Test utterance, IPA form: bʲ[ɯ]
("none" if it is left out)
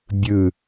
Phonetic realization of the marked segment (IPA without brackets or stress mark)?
ɯ